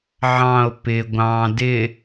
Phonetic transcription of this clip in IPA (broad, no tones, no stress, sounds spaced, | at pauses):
ʕ ɑ̃ o̯ p ɪ ɡʷ ɑ̃ d ɪ